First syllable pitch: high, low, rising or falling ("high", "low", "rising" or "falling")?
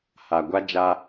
low